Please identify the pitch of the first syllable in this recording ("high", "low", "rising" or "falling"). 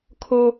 high